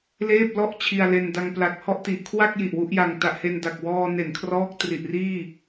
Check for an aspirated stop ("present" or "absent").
present